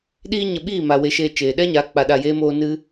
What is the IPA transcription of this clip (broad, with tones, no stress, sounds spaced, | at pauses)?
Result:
ɗ iː˦ ɲ ə˧ ɓ iː˦˨ m a˨ w e˨˦ ʃ eː˧ t͡ʃ eː˨ ɗ ɛ˦ ɲ a˨˦ k͡p a˨ ɗ a˨ j eː˧ m oː˧ n ɨ˧